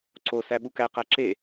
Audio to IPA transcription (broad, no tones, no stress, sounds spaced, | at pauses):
ǀ o s æ ɓ u k æ q æ ǁ e